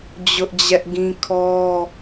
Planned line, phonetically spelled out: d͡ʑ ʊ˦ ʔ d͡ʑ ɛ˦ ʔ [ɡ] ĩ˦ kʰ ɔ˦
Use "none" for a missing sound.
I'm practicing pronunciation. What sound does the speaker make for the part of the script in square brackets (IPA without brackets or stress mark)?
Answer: ɡ